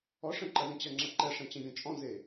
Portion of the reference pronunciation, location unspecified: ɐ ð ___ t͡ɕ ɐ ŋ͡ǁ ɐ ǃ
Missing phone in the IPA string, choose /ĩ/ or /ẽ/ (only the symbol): ẽ